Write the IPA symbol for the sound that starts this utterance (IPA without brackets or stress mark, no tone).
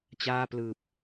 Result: t͡ɕ